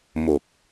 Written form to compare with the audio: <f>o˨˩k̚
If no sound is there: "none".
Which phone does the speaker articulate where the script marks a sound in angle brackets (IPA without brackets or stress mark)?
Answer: m